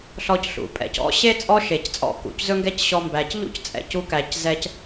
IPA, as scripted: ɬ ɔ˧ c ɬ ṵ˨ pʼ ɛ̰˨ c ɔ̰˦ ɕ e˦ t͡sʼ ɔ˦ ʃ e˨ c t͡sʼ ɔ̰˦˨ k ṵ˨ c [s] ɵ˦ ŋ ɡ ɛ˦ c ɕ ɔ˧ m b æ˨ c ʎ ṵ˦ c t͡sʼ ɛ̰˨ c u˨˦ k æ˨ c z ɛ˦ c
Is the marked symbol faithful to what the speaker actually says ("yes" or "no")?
no